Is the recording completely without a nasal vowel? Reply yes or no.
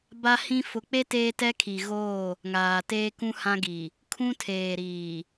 no